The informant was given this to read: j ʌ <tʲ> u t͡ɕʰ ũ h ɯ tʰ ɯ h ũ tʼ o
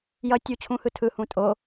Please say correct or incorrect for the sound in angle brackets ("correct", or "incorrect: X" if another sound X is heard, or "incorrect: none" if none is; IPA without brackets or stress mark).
correct